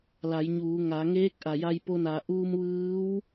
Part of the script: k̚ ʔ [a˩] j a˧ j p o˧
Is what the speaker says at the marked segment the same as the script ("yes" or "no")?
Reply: yes